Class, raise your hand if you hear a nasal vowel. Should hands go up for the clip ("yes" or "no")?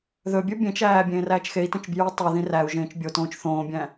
yes